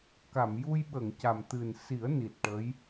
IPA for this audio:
k a˨˩˨ m j u˧ j ɓ ə˨˩˨ ŋ c a˨˩ m t̪ ɨ˨˩ n s i˨˩˦ ə̯ n i˨˩ t̚ ʈ ə˧˥ j

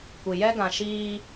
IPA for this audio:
kʷ i˨ j ɛ˦ ɡ ã˨ ʃ iː˦

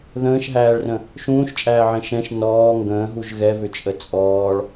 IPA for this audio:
ð ə̃ː ʃ ɦ æː ɭ r ə̃ | ʃ ũː ʃ t͡ʃʼ æː ʕ ɛ̃ ʃ ɛ̃ ʃ n ɔː ŋ ɡ ə̃ː ɦ u ʒ ɣ ɛ v ʏ t͡ʃʼ ə t͡sʼ ɔː ɭ

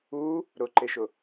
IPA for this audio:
u | ɾ ʊ ǃ e ʃ ʊ

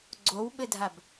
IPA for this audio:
ɡ͡ǀ o w ɓ ɘ dʱ a b

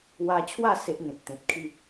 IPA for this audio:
w a˧ t͡ɕʰ w a˥˧ s e˦ ʔ ŋ ẽ˨ t̚ t̪ ẽ˨ t̚ kʰ i˥˧

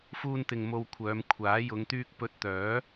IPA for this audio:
f uː˧ n t̪ ɪ˨ ŋ m o˧ w kʷʰ œː˨˧ m kʷʰ aː˨˥ j ʊ˨˧ ŋ t̪ yː˥ k̚ p ɵ˧ t̚ t̪ œː˨˥

